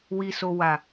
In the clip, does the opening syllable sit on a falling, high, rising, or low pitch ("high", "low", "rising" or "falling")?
low